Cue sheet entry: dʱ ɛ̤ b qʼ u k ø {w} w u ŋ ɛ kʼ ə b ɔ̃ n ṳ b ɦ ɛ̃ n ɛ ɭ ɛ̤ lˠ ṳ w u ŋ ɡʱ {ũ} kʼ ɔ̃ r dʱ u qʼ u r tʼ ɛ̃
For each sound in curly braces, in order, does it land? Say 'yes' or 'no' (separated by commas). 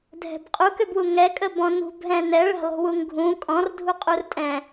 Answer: no, yes